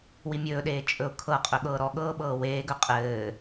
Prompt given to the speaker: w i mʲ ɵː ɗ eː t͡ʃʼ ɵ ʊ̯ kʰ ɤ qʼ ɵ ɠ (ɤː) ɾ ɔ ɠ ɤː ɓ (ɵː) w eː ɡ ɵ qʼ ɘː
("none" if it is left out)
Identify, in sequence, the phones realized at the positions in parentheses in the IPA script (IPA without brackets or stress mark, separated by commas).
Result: ɤː, ɤː